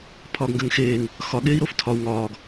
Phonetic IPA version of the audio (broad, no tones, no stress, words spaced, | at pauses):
pʰɒːɡŋɡɜŋxeːŋ | xɒ ɠeːi̯ɾoftʰɒu̯ ŋɒːɡ